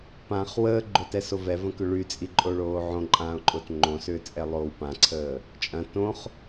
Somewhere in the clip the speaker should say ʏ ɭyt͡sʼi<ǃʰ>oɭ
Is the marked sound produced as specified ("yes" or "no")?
no